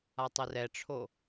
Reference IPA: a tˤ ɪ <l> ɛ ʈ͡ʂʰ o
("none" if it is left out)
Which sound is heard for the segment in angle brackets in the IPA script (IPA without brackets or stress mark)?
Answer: r